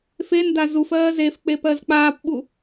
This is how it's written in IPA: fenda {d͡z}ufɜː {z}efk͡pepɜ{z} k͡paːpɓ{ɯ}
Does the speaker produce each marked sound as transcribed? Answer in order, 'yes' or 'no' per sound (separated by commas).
no, yes, yes, no